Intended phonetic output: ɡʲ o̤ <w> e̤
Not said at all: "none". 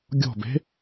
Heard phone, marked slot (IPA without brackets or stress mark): b